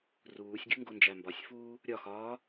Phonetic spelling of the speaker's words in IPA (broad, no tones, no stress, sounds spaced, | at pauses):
r uː sʲ ɡʲ u ŋ ɡ o n d͡ʒ æ m b ɒ sʲ f uː | ɾʲ ɒ x ɒː